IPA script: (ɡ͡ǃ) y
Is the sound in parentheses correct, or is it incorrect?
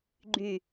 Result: correct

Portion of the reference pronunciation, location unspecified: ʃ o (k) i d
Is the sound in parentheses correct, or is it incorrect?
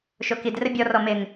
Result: correct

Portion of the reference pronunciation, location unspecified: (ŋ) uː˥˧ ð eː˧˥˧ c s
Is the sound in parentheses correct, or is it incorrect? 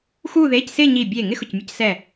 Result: incorrect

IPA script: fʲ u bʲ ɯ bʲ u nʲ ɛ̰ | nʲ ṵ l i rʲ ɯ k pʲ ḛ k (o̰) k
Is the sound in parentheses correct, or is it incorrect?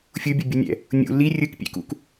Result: incorrect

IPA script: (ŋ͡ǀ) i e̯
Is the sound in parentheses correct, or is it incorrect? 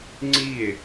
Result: correct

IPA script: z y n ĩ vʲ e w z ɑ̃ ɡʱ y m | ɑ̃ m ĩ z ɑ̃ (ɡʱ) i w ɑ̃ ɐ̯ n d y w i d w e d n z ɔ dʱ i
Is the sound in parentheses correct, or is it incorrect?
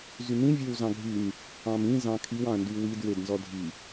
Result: incorrect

